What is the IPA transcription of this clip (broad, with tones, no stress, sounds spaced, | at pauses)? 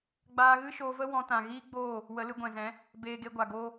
ɡ͡b aː˧ ɣ ɨ˦ ʃ oː˧ v ə˦ w ɔ̃˧ t ã˨ ɣ iː˦ ɡ͡b oː˦˨ | w ə˨˦ l ɨ˧ ɡʷ ɛ̃˨ z ɛ̃˨˦ | b eː˧ ɡ e˧ ɡʷ a˨ ɡ oː˧